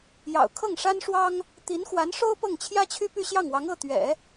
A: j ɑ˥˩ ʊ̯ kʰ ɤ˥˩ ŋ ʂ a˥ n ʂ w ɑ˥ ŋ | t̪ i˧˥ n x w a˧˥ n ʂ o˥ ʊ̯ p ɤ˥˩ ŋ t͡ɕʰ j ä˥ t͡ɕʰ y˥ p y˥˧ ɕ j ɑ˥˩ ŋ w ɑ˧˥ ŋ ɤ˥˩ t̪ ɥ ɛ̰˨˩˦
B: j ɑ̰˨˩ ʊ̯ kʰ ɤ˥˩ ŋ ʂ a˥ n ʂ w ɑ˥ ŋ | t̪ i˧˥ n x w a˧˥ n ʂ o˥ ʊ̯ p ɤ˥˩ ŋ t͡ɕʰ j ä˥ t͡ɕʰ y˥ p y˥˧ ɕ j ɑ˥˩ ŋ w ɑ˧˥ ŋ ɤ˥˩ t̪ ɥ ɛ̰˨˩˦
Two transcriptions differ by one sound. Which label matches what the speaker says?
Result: B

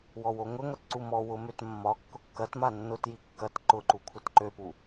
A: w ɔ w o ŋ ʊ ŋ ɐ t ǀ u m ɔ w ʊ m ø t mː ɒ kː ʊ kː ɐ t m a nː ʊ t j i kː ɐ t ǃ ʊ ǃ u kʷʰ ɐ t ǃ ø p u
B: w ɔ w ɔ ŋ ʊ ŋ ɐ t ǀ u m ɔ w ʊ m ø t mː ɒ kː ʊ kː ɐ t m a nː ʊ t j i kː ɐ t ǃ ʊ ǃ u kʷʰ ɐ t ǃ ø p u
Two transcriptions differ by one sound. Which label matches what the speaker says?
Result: A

